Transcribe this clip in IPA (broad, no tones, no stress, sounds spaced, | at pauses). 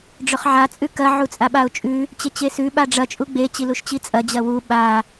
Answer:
ɖ͡ʐ ɵ χ ʕ a t͡sʼ ʉ k ɐ ʕ u t͡sʼ a ɓ a ʊ̯ t͡ʃʼ ʉ | t͡ɕ e t͡ɕ e s ʉ ɓ a ɖ͡ʐ ɐ t͡ʃʼ u ɡ͡b e t͡ɕ i l u ʃ t͡ɕ i t͡sʼ ɐ d͡ʑ ɐ w u ɓ a